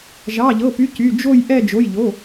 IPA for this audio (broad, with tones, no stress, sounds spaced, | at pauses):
ʒ ɑ˩˧˩ ʎ ɤ˩˧˩ p y˩˧˩ c y˩˧˩ d͡ʒ o˦˨ j ʔ ɛ˦˨ d͡ʒ o˩˧˩ j ʎ o˩˧˩